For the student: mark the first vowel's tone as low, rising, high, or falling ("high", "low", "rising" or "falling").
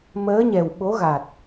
rising